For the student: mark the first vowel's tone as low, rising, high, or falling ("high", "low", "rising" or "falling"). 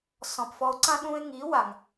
low